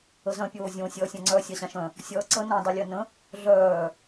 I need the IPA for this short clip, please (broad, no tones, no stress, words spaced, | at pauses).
əzœ̃ pʲoːzʲõ sʲʌːsʲãŋ͡ǀœ sʲaɕãʃœ̃ | sʲʌːǀə nõ dˤʌlʲœnə̃ | ɮœː